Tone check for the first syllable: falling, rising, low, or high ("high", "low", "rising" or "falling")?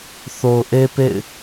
low